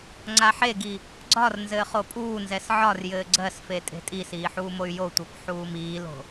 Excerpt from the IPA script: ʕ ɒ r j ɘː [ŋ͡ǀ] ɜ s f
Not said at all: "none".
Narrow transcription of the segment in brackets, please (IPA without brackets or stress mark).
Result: ɡ͡ǀ